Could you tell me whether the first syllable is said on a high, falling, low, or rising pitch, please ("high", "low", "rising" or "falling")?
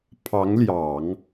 rising